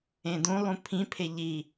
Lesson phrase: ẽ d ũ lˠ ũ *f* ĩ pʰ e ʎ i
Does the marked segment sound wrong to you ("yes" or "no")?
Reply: yes